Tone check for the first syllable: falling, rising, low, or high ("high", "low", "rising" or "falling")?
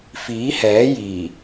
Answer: rising